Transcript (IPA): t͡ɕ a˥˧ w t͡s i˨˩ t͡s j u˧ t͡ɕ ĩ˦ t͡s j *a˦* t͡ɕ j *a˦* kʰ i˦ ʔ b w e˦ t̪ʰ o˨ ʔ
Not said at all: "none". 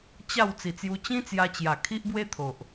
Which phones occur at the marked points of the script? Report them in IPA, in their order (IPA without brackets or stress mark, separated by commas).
a˧, a˨˩